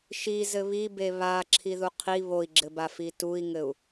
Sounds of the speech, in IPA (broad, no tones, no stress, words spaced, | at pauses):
ʃizɘ βibe βa ǁʰiðuqʰi βoi̯ɡ͡ǁɘbafi tui̯ŋɘu̯